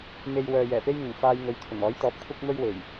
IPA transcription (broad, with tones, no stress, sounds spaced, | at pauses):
m e˧ j w œː˨ j ɛː˨˩ p e˥ j ŋ ʊ˨˩ ŋ f aː˧ j ŋ ɵ˨˧ ɥ t̪ʰ ʊ˨˩ ŋ ɔː˨˥ j t̪ ɔː˨˥ p̚ kʷʰ ɐ˥ k̚ m ɵ˥ ɥ w e˨˩ j